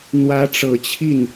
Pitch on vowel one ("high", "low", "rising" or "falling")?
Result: rising